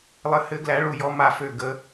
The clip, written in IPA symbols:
lˠ ɘ˨˦ h ɘ˨˦ ɡ l æ˨˦ ɭ u˧˩ j ɔ˨˦ m a˧˩ f ø˧˩ ɡ ə˨˦

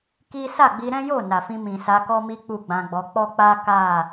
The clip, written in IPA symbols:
k i˦ s a˦˨ ɡ͡b i˧ ɾ ɛ̃˦ j o˦˨ n a˨ f ĩ˧ m ĩ˨ s a˧ k ɔ˦ m i˦ k͡p u˦˨ ɡ͡b ã˧ ɡ͡b ɔ˧ k͡p ɔ˦ k͡p a˦ k a˦˨

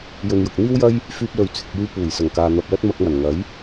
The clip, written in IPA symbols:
j ɵ˨ n j ʊ˨ k̚ n̪ iː˥ w j ɐ˥ j | f yː˧ p̚ l ɵ˨˧ ɥ t͡sʰ ɪ˨ k̚ j yː˧ p uː˨˩ j s ɐ˨˩ ŋ k aː˨ n̪ ɐ˧ p̚ l ɐ˥ t̚ m ɐ˧ k̚ m ɐ˨˩ n ŋ ɐ˨˥ j

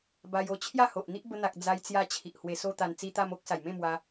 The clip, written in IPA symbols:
b a˧ j o˧ t͡ɕʰ j a˥˧ h o˨ ʔ n̪ i˦ ʔ b ə˧ n̪ a˨ k̚ d͡z a˧ j t͡s j a˧ t͡ɕʰ i˨ ʔ h w e˧ s o˦ t̪ a˧ n t͡s i˧ t̪ a˧ m o˦ k̚ s a˨˩ j m ẽ˥˧ m w a˧

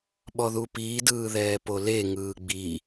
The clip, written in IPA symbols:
ɓ ɔ ð u p iː d ɯː ð ɛː p o l e ŋ ɯː ɡ͡b i

